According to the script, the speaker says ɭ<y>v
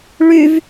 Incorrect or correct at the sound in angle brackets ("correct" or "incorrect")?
correct